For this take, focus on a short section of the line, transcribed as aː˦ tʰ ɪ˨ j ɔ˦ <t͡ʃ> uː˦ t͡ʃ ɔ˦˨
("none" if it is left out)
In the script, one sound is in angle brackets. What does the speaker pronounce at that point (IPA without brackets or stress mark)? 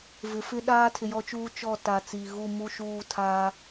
t͡ʃ